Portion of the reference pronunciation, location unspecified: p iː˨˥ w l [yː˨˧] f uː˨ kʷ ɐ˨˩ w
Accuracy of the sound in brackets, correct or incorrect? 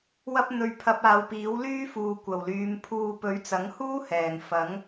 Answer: incorrect